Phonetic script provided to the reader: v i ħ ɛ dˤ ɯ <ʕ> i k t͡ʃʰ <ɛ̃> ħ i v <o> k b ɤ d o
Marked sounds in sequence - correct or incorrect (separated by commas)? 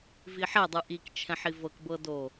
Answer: incorrect, correct, incorrect